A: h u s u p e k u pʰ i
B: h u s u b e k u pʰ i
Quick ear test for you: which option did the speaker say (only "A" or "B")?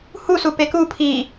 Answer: A